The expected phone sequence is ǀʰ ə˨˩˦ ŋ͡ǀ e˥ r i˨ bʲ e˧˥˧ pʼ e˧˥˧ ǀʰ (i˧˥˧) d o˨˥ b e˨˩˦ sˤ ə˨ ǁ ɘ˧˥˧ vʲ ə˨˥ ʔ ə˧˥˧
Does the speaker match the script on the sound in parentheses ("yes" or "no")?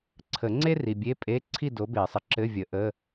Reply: no